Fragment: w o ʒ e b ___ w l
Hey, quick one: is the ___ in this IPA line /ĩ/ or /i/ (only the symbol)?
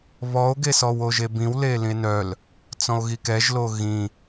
ĩ